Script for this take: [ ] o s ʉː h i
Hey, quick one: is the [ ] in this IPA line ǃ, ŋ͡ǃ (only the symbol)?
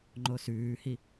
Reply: ŋ͡ǃ